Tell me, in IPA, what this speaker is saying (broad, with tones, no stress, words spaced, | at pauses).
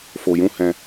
fo˧jũ˦hɛ̃˦